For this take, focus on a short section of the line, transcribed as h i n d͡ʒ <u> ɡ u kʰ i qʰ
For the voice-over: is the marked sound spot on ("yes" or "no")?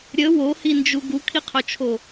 yes